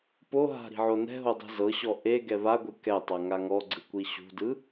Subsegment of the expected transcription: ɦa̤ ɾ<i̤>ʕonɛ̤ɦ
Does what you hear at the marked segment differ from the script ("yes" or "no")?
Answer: no